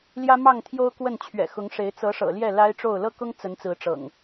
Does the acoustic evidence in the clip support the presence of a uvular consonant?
no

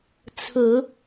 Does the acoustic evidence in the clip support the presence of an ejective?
no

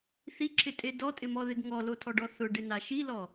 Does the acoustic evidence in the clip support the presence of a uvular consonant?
no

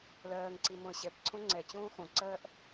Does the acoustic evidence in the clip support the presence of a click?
yes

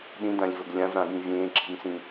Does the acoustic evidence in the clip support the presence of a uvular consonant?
no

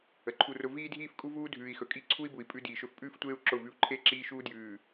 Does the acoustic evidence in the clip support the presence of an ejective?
yes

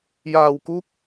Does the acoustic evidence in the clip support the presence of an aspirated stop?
no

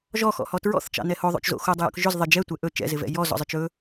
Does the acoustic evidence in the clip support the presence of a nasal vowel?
no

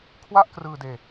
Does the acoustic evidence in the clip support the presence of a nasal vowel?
no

